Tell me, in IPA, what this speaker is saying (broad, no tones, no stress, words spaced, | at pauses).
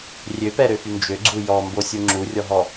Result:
rʲøpɛɾøfy nd͡ʒøɡ͡ǀu jɔmbosʲu ŋ͡ǁurʲɔɦɔ